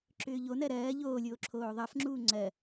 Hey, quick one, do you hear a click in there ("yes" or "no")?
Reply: yes